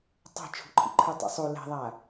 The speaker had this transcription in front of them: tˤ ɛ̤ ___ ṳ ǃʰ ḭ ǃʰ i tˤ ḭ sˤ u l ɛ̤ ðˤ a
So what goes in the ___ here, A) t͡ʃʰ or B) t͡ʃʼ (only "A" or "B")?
A